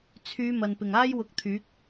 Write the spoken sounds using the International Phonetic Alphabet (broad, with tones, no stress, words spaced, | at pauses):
t͡sʰyː˨˧ mɐ˨npɪ˨˩ŋ aː˥jwʊ˨˥k̚ t̪ʰyː˨˥k̚